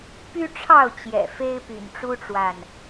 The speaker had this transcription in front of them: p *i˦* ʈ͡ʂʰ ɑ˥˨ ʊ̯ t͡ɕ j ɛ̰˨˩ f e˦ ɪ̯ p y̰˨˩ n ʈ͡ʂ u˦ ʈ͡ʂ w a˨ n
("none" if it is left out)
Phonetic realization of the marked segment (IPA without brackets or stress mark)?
y˦